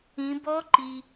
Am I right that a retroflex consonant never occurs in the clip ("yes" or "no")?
yes